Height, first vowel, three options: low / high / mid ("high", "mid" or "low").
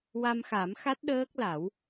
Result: low